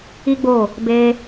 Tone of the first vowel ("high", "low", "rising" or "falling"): high